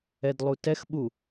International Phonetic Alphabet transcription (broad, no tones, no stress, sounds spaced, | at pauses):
ɛ d lˠ u t ɛ x ɓ u